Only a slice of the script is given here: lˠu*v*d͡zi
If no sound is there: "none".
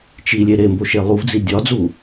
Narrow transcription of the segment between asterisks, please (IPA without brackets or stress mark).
v